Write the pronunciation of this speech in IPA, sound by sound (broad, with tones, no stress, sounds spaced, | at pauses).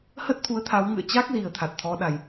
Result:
h ə˦˥ t̚ t̪ʰ u˨˦ ə̯ t̪ʰ a˨˦ w ŋ ɨ̰˧˨ ə̯ t͡ɕ a˦˥ k̚ z i˨˩ ə̯ t̪ʰ a˨˩ t̚ t̪ʰ ɔ˨˦ ɗ a˨˩ j